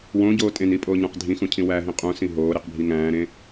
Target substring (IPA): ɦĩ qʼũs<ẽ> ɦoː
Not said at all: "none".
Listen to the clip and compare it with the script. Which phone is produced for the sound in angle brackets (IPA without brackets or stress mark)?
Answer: ĩ